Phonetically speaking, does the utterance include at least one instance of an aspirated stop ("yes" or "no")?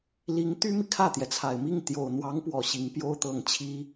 yes